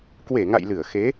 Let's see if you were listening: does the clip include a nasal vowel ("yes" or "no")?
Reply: no